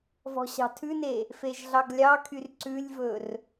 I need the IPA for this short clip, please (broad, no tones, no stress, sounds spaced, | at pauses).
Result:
v ɔ̤ ɕ ɑ̤ tʰ ʉ n e | f e ʒ ɮ ɑ ɡ lʲ ɑ kʰ y r ǀ ʉ lʲ v ɵ r